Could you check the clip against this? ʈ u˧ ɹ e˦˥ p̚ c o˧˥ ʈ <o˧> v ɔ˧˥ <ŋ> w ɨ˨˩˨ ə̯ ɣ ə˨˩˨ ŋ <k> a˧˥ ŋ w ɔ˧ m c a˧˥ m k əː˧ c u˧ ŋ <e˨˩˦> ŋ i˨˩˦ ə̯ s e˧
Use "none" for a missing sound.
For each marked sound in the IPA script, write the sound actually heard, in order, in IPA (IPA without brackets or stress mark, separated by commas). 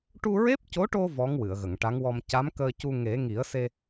o˧, ŋ, ʈ, e˨˩˦